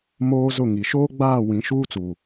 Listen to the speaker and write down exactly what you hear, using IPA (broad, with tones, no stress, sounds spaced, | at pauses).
m oː˦ z ʊ˦˨ ŋ i˨ ʃ oː˦ ɡ͡b aː˦˨ w ĩ˨˦ ʃ uː˦ t͡s uː˨